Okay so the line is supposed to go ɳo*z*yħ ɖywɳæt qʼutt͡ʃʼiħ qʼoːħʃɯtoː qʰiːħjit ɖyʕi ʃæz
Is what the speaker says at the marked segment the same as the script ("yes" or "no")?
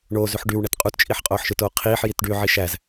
yes